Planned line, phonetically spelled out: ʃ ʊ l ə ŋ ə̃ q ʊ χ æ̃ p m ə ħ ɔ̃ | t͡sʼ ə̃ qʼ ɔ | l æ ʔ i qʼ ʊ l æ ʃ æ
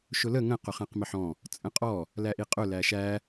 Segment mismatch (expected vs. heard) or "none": p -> q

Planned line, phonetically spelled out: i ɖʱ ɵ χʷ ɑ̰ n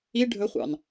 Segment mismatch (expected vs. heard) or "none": none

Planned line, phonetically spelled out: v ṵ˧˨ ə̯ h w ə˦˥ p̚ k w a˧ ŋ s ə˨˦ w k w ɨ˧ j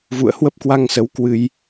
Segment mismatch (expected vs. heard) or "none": none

